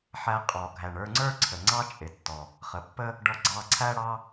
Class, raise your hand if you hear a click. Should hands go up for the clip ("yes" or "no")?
yes